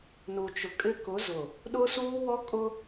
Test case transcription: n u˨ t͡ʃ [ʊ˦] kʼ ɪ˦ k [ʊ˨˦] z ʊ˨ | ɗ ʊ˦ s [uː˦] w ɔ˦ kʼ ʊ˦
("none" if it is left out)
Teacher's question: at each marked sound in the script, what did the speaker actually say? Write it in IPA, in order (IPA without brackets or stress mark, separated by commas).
ʊ˨, ʊ˨˦, uː˦